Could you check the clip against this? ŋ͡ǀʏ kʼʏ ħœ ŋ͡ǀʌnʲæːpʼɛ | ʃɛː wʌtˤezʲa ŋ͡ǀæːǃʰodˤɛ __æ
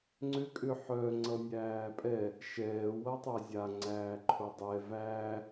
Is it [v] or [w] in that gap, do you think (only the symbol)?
v